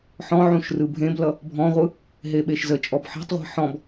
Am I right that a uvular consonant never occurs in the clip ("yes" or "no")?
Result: no